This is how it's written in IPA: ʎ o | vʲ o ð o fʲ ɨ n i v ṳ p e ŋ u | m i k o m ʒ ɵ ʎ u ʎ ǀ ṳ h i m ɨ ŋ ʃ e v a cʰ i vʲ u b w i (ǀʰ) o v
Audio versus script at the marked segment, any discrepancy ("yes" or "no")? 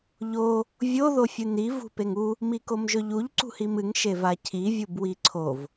no